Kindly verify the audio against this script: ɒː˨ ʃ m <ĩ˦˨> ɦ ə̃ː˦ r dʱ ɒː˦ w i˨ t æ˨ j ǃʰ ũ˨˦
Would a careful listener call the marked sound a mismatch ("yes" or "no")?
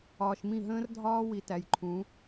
no